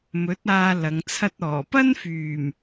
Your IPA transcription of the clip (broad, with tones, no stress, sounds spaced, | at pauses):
m ɵ˨˥ t̚ aː˧ l ɐ˨˧ ŋ t͡sʰ ɐ˥ t̚ ɔː˨˩ p ɐ˥ n f yː˨˩ m